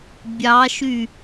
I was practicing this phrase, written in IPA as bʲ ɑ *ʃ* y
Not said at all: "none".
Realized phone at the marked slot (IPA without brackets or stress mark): ʃ